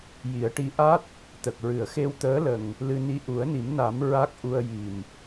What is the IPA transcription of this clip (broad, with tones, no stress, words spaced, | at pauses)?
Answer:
ji˨˩˦ə̯ʈi˧˥ ʔa˦˥t̚ | t̪ə˨˩k̚ɹɨ˨˩˨ə̯xe˧w t̪əː˧˥lə˨˩ŋ | lɨ˧ni˧ ʔu˨˩˦ə̯ni˨˩˦mna˨˩˦m ɹa˦˥k̚ʔu˧ə̯ji˨˩m